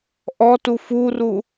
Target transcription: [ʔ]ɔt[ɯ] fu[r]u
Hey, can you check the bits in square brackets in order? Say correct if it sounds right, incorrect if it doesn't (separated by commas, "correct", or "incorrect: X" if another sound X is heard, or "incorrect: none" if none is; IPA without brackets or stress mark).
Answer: correct, incorrect: u, correct